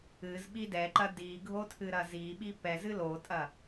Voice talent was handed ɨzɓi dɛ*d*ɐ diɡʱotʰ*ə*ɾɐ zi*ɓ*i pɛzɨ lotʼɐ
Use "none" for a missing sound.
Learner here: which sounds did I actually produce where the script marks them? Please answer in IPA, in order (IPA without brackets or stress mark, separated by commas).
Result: ǃ, ɨ, ɓ